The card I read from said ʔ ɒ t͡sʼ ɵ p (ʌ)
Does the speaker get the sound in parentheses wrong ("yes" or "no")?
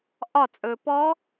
yes